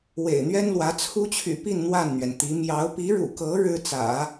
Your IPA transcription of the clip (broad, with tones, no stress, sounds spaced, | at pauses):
w ḛ˨˩ ɪ̯ n̪ ɥ ɛ˥ n l w ä˧˥ t͡sʰ u˥ t͡ɕʰ y̰˨˩ p i˥˧ n n̪ w a˥˩ n n̪ ɥ ɛ˩ n t̪ i˧˥ m j ɑ˧˥ ʊ̯ p i˧˥ ɻ ṵ˨˩ k ɤ˧˥ ɻ ɻ̩˥ t͡s ä̰˨˩˦